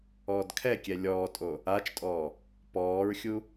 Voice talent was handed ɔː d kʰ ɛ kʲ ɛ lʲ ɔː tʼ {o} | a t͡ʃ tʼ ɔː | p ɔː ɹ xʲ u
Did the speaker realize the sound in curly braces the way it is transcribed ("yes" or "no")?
yes